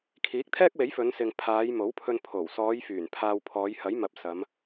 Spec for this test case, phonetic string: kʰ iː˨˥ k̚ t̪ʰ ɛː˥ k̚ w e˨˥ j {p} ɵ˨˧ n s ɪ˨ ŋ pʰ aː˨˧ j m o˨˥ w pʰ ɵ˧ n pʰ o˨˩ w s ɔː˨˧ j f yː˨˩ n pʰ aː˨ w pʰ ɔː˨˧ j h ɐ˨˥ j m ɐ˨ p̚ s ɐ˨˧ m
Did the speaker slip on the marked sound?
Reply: yes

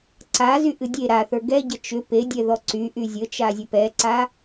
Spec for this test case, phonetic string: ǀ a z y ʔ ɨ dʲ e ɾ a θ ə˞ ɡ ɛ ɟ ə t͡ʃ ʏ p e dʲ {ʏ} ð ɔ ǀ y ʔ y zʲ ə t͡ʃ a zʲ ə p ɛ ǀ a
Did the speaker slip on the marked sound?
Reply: yes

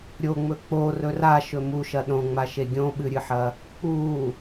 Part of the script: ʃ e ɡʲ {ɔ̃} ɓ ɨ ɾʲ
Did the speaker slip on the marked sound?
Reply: yes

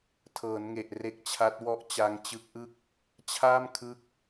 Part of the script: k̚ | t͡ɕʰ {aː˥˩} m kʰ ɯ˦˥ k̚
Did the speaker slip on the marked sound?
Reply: no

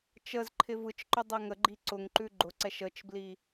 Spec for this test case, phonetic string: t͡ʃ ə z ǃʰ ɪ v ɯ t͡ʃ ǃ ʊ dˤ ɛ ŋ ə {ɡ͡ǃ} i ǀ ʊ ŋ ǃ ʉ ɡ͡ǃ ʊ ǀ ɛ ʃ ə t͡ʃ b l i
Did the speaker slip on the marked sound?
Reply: no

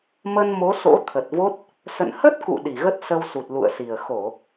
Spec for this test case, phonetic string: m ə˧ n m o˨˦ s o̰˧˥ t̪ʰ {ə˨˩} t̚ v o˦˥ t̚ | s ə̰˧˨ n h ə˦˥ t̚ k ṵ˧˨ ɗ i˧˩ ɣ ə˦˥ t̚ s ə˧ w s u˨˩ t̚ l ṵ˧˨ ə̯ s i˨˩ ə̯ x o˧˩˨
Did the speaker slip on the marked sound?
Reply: no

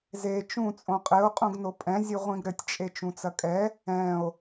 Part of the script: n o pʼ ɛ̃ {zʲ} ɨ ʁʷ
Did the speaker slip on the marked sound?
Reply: no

